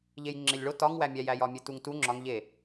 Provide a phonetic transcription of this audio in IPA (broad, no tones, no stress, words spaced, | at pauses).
ʎejŋ͡ǁelʲɭo tɒŋwæmʲæjæj ɒmʲetuŋtu ŋ͡ǁɒŋ ʎe